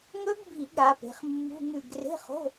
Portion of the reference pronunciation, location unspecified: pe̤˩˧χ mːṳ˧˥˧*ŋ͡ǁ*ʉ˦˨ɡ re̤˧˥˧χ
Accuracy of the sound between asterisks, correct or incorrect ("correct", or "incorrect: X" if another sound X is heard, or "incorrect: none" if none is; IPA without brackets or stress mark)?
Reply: incorrect: ŋ